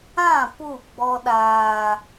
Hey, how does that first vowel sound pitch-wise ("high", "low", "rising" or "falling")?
falling